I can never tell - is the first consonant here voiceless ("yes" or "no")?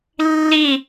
no